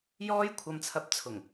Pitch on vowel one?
high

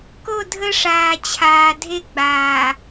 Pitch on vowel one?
falling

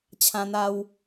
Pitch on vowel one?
high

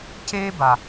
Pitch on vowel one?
high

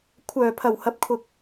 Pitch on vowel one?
low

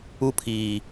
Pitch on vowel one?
high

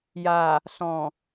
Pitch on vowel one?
low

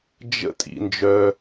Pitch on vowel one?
high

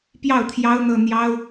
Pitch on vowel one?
falling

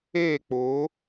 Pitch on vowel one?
falling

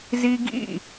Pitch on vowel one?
high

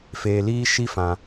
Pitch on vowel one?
low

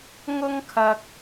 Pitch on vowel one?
high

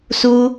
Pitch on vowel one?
high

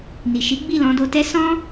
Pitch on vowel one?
low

